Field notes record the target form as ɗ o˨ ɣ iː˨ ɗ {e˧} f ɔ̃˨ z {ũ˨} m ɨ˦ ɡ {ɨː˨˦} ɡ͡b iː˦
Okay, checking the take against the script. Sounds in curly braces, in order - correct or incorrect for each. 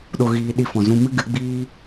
incorrect, incorrect, incorrect

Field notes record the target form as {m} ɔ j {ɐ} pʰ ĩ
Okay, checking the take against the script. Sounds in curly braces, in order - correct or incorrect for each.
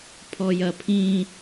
incorrect, correct

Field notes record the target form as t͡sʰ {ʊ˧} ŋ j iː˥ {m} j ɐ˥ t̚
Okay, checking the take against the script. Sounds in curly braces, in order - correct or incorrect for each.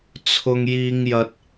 incorrect, incorrect

